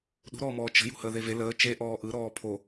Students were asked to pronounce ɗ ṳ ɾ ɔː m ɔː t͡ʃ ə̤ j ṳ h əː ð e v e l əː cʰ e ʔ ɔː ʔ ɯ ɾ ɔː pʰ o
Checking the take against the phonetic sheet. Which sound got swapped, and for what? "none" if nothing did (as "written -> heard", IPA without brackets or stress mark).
cʰ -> t͡ʃ